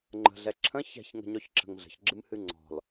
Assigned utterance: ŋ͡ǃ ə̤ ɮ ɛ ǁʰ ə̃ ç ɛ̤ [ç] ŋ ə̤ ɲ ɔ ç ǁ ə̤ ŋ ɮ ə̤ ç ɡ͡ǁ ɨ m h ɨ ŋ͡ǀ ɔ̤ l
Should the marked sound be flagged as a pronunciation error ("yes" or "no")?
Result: no